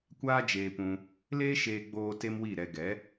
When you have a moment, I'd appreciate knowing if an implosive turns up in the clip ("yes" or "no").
no